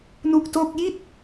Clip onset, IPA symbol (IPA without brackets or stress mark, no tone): n